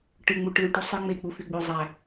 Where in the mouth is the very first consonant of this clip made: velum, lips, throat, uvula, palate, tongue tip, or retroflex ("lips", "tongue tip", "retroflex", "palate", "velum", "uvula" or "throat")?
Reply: retroflex